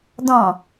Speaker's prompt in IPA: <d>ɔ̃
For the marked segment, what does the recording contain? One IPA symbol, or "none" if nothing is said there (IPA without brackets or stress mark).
d